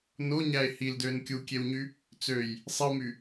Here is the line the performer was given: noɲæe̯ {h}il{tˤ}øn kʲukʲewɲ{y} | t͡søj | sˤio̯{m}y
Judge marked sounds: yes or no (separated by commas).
yes, no, yes, yes